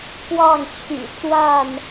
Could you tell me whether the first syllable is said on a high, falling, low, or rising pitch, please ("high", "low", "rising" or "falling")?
falling